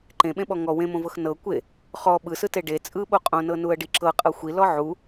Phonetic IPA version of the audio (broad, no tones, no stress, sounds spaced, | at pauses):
ǃ ẽ ɓ ẽ ɓ ɔ ŋ ɔ w ẽ m õ v ɤ x n ɤ kʷ e | χ ɔ ɓ ɯ s ɯ t e ɖ e t͡sʼ ɯ ɓ o qʼ õ n ɤ n u ə̯ ɖ i ǁ ɤ qʼ ɤ xʷ i l ɔ ʕ u